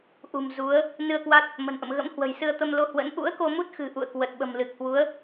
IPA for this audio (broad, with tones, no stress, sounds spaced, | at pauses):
ʔ ṳ˨˩ m z u˨˦ ə̯ | n ɨ˧ ə̯ k w a˦˥ t̚ | m ə̤˨˩ n ʔ ə̰˧˨ m ɣ ə̰˧˥ m h w ə̤˨˩ j s ɨ˧ ə̯ t̪ ə˧ m l o˧ h w ə̰˧˥ n ʔ ṵ˧˥ ə̯ k o˧ m u˦˥ t̚ x ɨ̤˨˩ ʔ ṵ˧˨ ə̯ k w ə˨˩ t̚ ɓ ə̤˨˩ m l ɨ˨˩ k̚ h w u˨˦ ə̯